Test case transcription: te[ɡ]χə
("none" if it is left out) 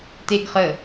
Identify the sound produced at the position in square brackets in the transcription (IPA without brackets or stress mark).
ɡ